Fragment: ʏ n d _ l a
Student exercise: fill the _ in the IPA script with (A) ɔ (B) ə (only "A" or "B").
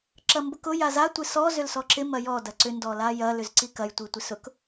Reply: A